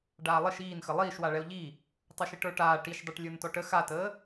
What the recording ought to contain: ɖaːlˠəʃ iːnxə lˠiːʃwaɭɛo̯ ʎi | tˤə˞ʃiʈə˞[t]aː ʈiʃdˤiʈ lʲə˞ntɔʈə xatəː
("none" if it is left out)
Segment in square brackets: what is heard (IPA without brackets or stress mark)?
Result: ʈ